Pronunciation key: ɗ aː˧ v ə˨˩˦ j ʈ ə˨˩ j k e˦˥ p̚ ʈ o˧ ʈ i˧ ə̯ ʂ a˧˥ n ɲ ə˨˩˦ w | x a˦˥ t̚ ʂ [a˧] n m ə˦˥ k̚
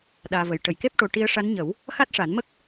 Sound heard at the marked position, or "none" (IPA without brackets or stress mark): a˨˩˦